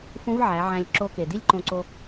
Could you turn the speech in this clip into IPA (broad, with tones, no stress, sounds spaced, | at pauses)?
f ũ˧˥ v ʕ æ˩˧ ʕ æ̃˧ lʲ ǁ o˧˥ k e˩ d i˥ lʲ ǃ õ˧ ǀ o˧